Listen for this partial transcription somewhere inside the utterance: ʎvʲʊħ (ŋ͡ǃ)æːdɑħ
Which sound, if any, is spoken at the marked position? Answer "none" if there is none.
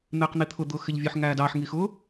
ŋ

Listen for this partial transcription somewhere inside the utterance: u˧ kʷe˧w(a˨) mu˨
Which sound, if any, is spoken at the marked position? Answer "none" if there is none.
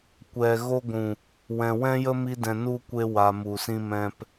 a˨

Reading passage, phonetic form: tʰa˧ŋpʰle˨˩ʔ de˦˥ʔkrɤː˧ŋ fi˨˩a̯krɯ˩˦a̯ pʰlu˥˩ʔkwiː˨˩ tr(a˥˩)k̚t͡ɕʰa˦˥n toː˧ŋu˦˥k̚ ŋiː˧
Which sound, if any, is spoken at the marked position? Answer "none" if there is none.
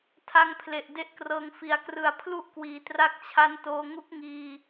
a˦˥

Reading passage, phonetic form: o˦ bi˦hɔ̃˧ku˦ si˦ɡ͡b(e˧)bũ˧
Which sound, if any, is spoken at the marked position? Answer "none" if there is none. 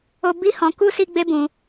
e˦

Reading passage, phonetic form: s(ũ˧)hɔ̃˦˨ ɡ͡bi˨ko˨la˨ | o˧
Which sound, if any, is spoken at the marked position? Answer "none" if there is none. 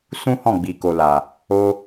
ũ˦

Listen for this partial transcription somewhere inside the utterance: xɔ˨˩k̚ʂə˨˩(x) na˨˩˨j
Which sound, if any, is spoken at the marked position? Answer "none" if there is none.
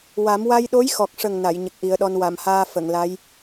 ŋ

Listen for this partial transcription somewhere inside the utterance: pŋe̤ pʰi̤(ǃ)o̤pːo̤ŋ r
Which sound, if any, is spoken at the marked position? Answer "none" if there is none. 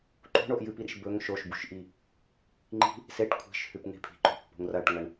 ǃ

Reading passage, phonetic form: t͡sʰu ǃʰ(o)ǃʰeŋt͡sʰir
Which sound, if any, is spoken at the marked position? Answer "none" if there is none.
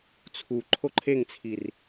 o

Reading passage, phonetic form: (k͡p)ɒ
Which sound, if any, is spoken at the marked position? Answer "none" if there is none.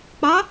k͡p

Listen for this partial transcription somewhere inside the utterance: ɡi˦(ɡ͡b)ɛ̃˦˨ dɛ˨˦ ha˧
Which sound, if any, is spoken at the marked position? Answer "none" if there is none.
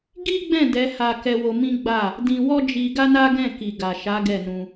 ɡ͡b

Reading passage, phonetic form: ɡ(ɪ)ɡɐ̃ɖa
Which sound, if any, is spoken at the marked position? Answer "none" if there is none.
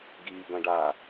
i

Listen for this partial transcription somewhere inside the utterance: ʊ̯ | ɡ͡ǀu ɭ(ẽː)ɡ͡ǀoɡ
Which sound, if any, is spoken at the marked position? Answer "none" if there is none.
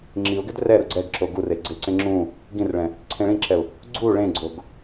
ẽ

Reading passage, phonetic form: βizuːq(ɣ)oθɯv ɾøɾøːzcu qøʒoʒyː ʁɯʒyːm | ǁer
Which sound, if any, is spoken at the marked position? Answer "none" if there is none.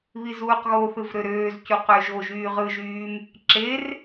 ɣ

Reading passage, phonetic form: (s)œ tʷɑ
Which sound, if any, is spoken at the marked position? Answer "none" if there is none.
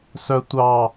s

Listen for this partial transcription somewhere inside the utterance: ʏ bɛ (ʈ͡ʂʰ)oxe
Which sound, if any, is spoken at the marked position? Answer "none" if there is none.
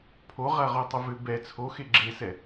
t͡sʰ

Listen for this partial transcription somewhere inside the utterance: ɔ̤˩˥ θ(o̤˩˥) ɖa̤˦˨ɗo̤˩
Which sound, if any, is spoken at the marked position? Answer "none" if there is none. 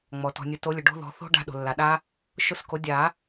o̤˦˥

